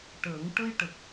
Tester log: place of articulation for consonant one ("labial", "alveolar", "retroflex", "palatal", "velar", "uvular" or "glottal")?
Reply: retroflex